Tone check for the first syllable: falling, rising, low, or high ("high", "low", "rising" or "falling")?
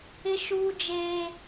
high